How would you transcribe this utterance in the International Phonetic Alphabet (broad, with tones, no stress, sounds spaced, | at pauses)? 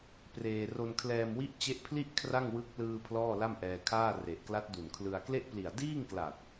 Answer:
p r eː˧ r o˧ n kʰ l ɛː˧ m w i˦˥ ʔ t͡ɕ e˦˥ ʔ pʰ l i˥˩ ʔ kʰ r a˥˩ ŋ w ɯ˦˥ k̚ l ɯː˧ pʰ l ɔː˥˩ l a˥˩ m ʔ ɛː˧ kʰ aː˥˩ r e˨˩ ʔ k l a˦˥ t̚ d u˨˩ n kʰ l ɯ˧ a̯ k l e˥˩ ʔ p l i˨˩ a̯ d iː˥˩ ŋ k l a˨˩ t̚